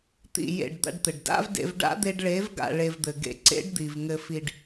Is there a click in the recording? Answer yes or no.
yes